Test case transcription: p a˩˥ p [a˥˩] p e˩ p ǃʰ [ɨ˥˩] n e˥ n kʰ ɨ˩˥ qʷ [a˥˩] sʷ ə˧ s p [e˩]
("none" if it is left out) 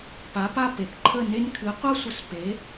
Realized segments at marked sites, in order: a˥˩, ə˥˩, a˥, e˩˥

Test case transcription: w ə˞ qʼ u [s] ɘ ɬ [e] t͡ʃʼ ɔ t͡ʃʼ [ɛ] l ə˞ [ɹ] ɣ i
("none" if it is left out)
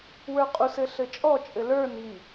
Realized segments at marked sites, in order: s, ɘ, ɘ, n

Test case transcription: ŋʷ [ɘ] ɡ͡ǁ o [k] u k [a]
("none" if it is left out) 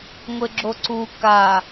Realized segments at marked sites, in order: ɘ, ǀ, a

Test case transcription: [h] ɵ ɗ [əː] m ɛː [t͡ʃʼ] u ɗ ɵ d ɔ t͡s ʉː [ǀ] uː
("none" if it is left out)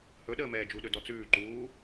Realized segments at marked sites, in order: h, əː, d͡ʒ, ǃ

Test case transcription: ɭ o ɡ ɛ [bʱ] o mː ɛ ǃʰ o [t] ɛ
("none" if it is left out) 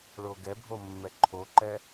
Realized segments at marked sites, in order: bʱ, ǃ

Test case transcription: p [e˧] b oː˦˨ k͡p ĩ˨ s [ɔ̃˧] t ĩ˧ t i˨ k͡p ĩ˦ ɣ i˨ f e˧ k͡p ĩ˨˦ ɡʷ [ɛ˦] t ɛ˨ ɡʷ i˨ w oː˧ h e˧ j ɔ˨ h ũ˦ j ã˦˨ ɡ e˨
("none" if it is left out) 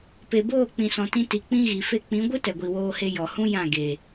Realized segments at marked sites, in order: e˨, ɔ̃˨, ɨ˦

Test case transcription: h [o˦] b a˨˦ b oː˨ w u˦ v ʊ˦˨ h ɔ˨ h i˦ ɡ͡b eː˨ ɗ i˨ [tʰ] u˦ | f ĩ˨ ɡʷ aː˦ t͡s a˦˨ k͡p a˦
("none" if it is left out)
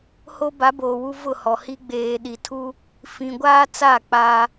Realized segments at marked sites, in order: o˦, tʰ

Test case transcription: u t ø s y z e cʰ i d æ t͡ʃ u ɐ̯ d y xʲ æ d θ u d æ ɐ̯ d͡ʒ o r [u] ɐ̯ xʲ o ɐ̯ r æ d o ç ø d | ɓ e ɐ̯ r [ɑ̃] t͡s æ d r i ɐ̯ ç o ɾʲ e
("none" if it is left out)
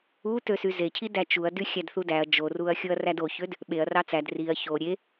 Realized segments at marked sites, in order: u, ɑ

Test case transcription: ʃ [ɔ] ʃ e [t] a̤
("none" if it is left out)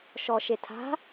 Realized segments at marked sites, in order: ɔ, tʰ

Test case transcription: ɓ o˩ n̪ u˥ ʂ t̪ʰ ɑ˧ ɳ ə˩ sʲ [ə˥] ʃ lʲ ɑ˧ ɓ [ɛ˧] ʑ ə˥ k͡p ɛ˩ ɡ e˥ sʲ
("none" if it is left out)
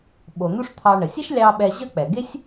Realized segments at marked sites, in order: ɛ˥, ɛ˧

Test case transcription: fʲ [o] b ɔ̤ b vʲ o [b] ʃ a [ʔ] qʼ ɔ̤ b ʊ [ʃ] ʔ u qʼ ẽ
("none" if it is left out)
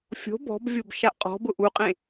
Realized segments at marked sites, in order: o̤, b, ʔ, none

